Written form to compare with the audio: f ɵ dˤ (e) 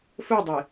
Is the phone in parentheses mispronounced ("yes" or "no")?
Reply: no